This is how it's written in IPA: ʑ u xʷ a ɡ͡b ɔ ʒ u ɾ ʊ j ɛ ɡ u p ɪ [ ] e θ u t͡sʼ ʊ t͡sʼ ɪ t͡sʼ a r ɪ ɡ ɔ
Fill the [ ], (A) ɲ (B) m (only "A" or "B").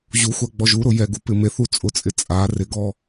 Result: B